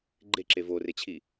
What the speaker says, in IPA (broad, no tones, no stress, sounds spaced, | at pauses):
ɡ͡ǃ e ǁ e v o r e t͡ɕʰ i